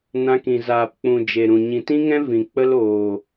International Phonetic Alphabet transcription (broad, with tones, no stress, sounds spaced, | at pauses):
n ã˧ k ĩ˨ z aː˨ p k͡p ũ˨ d͡ʒ e˨ ɾ ũ˨ ɲ ĩ˨ t ĩ˦ ŋ ɛ̃˦ v ĩ˨ k͡p ə˦ l oː˨